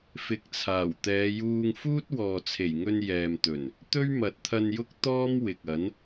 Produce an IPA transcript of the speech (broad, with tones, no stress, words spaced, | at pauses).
fɪ˨k̚t͡sʰaː˨˩w t̪ɛː˨˧juː˧ŋ fuː˥t̚wɔː˨t͡sʰe˨˩jŋɵ˧n jɛː˨mt̪ɵ˨˩n | t̪ɵ˥ɥmɐ˨t̚t̪ʰɐ˧njʊ˥k̚ t̪ɔː˥mwɪ˨k̚ɐ˨˥n